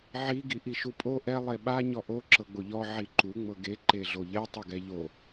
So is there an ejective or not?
yes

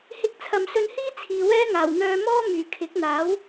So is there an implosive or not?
no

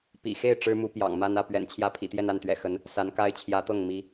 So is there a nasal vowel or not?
no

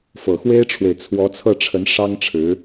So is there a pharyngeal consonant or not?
no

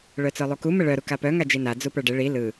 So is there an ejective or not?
no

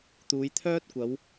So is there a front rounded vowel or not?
yes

